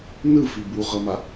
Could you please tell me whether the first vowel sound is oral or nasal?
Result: oral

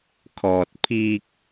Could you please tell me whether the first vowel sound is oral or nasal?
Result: oral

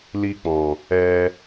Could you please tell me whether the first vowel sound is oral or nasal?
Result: oral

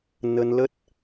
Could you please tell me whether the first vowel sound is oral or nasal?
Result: oral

